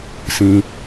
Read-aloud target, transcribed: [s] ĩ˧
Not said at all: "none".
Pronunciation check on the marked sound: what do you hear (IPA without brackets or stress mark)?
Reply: s